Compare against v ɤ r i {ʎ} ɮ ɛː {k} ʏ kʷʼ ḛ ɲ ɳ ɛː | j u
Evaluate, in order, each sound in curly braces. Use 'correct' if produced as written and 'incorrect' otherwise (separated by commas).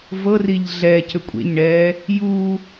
correct, incorrect